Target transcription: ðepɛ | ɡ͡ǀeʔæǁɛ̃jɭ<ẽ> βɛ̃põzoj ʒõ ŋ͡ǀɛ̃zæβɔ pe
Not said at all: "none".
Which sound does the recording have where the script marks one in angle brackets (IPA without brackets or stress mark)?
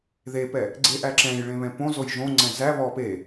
ẽ